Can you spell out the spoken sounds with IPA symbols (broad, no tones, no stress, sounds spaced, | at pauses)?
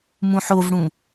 m ũ ħ o v ɽ ũ